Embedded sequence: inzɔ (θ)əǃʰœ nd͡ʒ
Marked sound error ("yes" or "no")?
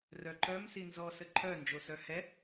yes